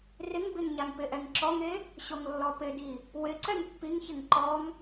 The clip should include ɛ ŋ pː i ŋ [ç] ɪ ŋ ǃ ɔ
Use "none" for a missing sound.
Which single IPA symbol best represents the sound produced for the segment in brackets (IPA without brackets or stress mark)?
ç